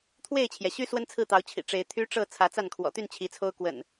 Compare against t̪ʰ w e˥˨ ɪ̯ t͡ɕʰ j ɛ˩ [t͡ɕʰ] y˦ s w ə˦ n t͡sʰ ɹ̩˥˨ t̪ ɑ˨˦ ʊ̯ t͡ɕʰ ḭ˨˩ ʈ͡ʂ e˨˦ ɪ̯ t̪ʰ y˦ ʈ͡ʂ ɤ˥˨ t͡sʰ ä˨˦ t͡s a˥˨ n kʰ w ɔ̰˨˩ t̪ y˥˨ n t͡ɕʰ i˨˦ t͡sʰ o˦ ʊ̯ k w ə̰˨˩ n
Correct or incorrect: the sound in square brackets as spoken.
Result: incorrect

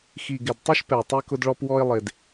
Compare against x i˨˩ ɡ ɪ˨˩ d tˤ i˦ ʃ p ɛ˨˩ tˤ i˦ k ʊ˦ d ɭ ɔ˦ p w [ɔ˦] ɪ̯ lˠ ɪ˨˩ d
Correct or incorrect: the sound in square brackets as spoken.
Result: correct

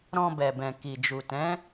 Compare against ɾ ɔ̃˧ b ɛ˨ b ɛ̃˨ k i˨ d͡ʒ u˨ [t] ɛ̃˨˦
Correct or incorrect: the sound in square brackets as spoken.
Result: correct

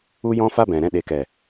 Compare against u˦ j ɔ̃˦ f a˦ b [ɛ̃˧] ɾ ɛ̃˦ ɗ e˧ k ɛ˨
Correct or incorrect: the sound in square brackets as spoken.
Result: incorrect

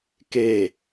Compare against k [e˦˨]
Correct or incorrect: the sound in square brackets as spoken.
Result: correct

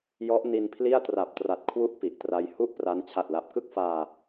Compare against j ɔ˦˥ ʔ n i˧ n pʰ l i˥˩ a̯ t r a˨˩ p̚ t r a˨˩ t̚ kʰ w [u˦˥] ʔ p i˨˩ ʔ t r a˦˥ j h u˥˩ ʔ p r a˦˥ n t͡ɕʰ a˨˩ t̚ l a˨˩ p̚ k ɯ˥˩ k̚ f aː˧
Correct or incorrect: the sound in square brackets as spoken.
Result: correct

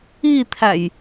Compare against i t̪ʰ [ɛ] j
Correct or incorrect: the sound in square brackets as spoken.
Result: incorrect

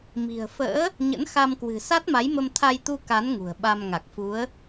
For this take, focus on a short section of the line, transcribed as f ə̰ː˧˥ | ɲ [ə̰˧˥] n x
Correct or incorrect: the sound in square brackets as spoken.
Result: correct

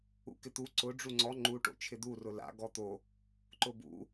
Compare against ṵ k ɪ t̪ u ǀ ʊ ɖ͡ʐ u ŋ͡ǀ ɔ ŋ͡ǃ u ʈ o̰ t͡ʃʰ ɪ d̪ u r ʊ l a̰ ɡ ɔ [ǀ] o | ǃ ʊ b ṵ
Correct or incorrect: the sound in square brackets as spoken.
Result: incorrect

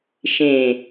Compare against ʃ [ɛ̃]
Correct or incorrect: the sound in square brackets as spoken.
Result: incorrect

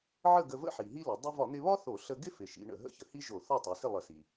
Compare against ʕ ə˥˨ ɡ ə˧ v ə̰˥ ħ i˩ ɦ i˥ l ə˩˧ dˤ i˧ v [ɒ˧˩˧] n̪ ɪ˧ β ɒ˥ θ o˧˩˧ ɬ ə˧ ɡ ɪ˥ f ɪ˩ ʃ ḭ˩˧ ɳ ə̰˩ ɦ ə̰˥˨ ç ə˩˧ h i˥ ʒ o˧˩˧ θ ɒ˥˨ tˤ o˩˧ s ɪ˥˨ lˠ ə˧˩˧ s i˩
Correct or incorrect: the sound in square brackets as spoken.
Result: correct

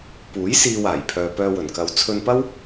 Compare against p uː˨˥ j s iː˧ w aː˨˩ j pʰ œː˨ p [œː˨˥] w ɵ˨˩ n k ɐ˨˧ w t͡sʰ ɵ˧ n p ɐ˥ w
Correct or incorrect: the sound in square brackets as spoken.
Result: incorrect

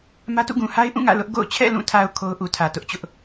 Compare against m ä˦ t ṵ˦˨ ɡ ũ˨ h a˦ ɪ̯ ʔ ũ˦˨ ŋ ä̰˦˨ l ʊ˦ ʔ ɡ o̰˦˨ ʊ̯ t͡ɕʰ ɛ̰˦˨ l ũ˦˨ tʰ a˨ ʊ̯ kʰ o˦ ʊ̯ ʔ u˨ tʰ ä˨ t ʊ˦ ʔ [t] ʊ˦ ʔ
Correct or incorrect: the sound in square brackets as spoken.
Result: incorrect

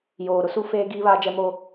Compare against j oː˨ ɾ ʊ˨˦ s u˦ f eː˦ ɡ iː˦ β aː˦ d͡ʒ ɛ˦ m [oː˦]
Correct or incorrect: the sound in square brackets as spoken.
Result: correct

